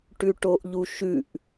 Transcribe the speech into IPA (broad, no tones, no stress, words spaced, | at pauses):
ʈʉʈoʔʎuʃʉʔ